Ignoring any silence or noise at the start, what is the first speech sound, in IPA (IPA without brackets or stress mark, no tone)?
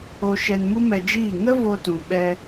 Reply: o